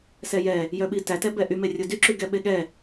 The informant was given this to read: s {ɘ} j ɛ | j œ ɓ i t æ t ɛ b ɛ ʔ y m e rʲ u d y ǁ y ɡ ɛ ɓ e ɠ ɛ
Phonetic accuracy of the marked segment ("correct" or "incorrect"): incorrect